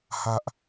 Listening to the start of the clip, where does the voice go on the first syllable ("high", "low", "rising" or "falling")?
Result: falling